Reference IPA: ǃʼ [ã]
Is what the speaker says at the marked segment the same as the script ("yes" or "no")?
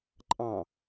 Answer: no